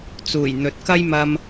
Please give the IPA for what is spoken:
t͡suː˨˩jn̪ɵ˨˥t̚ kɐ˥jmɐ˧m

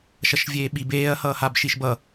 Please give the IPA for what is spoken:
ʃʌʃvʲeːɓib eːɐ̯ hʌːhabʃiʃbʌ

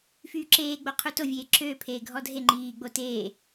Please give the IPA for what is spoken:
fyːǁeː ɡ͡boqʰuto vʲeːǁøː pʰeːɡʱɔdʱe ŋ͡ǃiː ɡ͡boteː

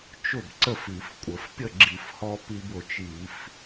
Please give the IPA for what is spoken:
t͡ʃʊ˥˩bǀə˥˩f i˧˩˧fkʷʼə˧˩˧f pʲə˥˩ɡ͡ǁi˧˩˧fhɔ˧ pi˧bʊ˨˩t͡ʃi˧˩˧f

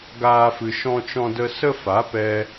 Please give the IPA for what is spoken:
ɡaː˦fɨ˧ ʃɔ̃˦t͡ʃɔ̃˦də˦ sə˦fa˨˦pɛ˧

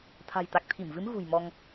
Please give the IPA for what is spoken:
t̪ʰa̤˨˩jt̪a˨˩k̚t̪ʰi˧˩mvɨ˨˦m ɣṳ˨˩jmɔ˧ŋ

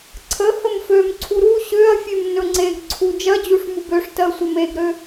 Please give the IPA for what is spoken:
ǀʰə həmfømǀʰu ɾu ɕøɐ̯ fʲømnɵŋ͡ǀeɡǀʰu d͡ʒɜd͡ʑuʂ mubøʂtɜ sʷəmeɡɾø

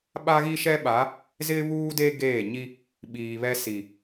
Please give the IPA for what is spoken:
ɓa˦ɣi˦ʃɛ˦ɓa˨˦ | zɪ˦βuː˦de˦ ɡeː˦˨ ɲi˦ | ɓiː˨βɛ˦si˨

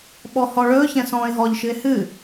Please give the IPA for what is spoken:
ɓɔhɔɭɵːçɛ̃ sɔ̃ːɪ̯ɦɔʎʃɨɪ̯ hɨ

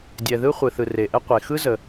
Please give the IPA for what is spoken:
dʲɛ˩ðɯ˥χʷɯ˩ θɯ˩re˩ʔɛ˥ qʷe˩xɯ˥zə˩

